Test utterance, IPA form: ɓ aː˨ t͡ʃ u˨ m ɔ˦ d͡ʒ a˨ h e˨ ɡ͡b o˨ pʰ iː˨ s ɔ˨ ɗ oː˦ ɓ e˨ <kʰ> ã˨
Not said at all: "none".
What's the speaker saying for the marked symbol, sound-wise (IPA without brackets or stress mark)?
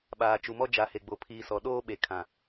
kʰ